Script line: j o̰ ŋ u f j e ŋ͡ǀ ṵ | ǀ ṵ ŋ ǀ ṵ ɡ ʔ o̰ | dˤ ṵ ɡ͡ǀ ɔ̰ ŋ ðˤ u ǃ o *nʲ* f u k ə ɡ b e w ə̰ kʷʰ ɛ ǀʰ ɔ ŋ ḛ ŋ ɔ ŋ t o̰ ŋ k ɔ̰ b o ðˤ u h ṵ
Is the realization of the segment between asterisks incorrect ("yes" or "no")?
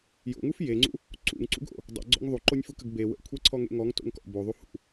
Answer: no